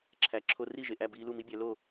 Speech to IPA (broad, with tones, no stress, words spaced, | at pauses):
ǁʰæ˩˥ǁʰo˧ ri˥˩ʒe˩ʔæ˥˩ biː˧lu˥˩ mi˥bʲæ˩˥ lo˥˩